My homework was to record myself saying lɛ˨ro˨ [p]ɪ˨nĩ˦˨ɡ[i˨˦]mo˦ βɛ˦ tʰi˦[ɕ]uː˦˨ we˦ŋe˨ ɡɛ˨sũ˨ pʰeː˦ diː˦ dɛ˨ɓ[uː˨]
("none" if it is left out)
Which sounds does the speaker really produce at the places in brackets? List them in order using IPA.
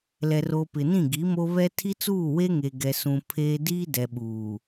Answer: p, i˨˦, t͡s, uː˨

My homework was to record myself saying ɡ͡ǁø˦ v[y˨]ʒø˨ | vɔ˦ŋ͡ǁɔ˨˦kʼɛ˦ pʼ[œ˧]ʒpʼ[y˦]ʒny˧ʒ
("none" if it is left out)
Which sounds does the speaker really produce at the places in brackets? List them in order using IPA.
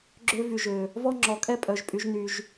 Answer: y˨, œ˧, y˦

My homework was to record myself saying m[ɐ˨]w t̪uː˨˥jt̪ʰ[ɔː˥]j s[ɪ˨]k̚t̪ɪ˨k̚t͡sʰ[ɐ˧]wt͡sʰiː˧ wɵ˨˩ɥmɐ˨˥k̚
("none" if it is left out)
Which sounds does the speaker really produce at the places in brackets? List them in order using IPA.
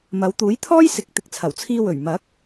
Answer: ɐ˨˧, ɔː˥, ɪ˨˥, ɐ˨˩

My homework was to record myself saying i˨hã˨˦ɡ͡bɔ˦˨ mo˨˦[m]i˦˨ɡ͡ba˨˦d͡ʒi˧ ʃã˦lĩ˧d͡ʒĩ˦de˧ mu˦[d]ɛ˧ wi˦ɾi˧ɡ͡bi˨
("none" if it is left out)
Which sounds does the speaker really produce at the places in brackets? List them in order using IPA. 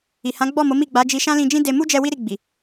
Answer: m, d͡ʒ

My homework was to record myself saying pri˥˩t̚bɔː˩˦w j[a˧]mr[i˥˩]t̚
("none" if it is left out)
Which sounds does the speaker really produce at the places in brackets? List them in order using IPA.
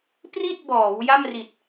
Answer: a˥˩, i˨˩

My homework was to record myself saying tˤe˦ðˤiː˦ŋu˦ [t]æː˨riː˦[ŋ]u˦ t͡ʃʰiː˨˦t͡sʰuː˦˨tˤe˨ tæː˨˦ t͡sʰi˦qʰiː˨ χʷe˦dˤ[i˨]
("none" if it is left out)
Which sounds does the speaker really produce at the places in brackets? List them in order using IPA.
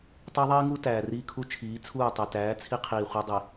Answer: t, kʰ, i˨

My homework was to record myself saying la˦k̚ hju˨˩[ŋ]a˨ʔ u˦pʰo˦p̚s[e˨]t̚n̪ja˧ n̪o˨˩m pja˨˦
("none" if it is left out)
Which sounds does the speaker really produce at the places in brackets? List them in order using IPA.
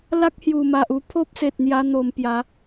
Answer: m, e˨

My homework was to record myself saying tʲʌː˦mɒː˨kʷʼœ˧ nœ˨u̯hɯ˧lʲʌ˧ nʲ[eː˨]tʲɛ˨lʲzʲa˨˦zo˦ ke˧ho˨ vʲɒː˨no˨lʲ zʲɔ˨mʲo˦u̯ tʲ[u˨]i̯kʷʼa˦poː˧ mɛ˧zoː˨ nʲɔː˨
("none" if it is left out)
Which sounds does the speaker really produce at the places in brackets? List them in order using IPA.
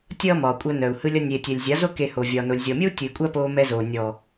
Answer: eː˨, ɯ˨

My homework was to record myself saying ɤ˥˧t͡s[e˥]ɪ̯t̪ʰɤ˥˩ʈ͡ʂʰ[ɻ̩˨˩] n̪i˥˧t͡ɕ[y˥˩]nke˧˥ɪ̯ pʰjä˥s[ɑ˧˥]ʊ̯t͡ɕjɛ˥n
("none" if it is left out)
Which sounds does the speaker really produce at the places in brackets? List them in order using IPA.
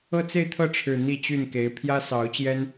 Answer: e˥˧, ɻ̩˨˩, y˥˩, ɑ˧˥

